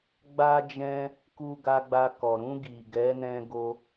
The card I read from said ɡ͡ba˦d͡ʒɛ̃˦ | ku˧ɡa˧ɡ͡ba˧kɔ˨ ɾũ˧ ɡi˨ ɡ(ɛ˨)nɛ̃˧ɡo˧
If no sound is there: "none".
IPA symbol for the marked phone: ɛ˨˦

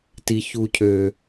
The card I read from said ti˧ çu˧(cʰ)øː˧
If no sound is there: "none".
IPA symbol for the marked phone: cʰ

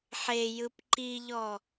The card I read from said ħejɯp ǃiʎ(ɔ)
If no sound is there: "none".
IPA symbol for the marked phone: ɔ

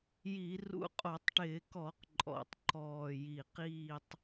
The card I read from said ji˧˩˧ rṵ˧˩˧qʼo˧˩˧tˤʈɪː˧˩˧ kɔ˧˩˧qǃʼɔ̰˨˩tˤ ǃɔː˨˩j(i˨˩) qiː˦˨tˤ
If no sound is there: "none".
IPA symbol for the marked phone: i˨˩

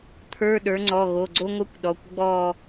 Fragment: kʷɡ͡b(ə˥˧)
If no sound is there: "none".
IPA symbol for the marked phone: ɔ˥˧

